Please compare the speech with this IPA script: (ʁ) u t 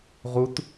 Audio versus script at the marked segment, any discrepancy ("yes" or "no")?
no